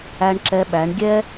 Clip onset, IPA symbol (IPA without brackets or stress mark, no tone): æ